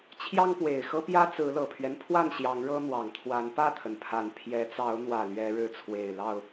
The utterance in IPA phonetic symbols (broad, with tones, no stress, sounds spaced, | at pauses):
t͡ɕʰ j ɑ˦ ŋ p w e˨˩ ɪ̯ x ɤ˦ p j ä˦ t͡s ɹ̩˨˦ l ɤ˨˩ pʰ ɥ ɛ˦ n pʰ w a˥˨ n ɕ j ɑ˨˦ ŋ ɻ ɤ˦ n̪ w ɑ˨˩ ŋ t̪ʰ w a˨˦ n p ä˥˨ t̪ʰ ə˩ n pʰ a˨˩ n pʰ j ɛ˨˦ t͡s ɑ˨˦ ʊ̯ n̪ w ä˨˩ l ɥ ɛ˨˦ ɻ ɻ̩˨˦ t͡sʰ w e˨˩ ɪ̯ l ɑ˥˨ ʊ̯